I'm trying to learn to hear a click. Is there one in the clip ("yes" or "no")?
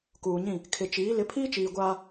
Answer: no